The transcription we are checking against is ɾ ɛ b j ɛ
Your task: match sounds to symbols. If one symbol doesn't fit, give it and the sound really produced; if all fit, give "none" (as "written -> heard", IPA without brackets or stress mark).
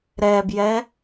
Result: none